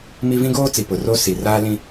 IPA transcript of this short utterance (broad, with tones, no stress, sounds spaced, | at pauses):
m i˦ v ĩ˦ ɡ oː˦ t͡s i˨ p ʊ˨ r o˦ s i˨ r aː˦ l ĩ˦